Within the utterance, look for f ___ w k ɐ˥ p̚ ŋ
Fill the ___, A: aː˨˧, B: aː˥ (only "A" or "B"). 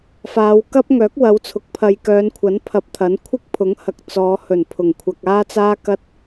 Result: A